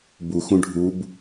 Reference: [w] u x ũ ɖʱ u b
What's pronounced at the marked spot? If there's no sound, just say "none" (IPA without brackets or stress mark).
b